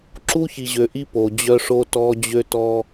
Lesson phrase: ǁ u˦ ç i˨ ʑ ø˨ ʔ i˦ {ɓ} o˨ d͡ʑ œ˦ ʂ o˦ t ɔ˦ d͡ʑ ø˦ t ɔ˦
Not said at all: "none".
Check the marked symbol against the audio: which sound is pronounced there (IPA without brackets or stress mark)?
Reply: p